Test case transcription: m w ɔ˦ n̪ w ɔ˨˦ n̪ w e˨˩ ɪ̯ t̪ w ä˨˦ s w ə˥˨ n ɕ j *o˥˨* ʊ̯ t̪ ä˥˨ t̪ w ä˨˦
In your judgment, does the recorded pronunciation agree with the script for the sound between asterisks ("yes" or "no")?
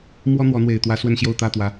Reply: yes